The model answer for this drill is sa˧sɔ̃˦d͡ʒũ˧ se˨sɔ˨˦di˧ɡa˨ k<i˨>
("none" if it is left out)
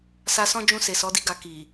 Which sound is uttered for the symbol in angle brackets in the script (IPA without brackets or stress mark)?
i˨